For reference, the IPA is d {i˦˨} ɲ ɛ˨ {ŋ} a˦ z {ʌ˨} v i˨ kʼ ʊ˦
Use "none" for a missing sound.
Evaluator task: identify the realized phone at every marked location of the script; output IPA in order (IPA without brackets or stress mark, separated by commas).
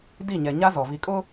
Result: i˦˨, ɲ, ɔ˨